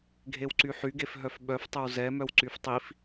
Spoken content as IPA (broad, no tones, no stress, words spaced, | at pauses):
ɡʱewǀyħyɡef ɦœfɓœftˤœw zɛmœw ǀyftˤif